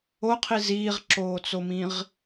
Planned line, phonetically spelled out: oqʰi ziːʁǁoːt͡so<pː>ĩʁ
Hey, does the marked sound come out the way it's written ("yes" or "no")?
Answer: no